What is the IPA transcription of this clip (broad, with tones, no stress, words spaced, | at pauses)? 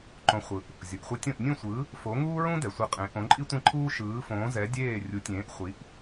ǃõ˩˥χʷɯ˩ʔ | zʲo˩ʔχʷi˧tʲõ˥˩ʔ nʲũ˥˩sʷɯ˩˥ | fo˩˥ŋuː˥ɹũ˥ dɛ˩sʷe˧qʼẽ˩˥ ʔõ˩˥ǃʼi˥tʷẽ˥˩ǃʰuː˥ ʃɯː˩˥fõː˩˥zɛ˩˥ dʲeː˥˩ rʲu˩˥tʲẽː˩˥ʔχʷi˩˥ʔ